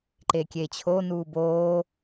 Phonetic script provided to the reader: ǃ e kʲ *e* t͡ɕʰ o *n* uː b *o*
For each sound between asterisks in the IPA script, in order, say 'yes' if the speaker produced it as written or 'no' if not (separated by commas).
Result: yes, yes, no